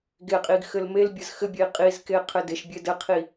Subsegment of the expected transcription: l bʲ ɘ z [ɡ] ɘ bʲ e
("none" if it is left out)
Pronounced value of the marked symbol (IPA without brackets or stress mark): x